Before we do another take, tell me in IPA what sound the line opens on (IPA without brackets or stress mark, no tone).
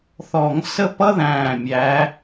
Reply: θ